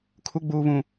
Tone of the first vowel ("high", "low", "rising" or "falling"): rising